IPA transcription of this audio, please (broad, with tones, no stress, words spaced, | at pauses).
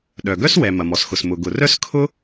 ɗœ˩ɡœ˥swɛ˩ mɐ˩mɔ˩sxʊ˩s mʊ˩ɡʊ˩rœ˥s kʰʊ˥